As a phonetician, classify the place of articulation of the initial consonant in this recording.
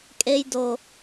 velar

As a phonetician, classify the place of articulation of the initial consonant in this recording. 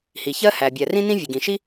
glottal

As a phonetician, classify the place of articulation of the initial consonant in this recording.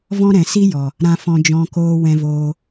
labial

